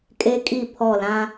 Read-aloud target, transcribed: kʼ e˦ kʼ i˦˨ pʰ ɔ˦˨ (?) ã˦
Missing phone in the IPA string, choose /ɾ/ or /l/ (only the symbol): l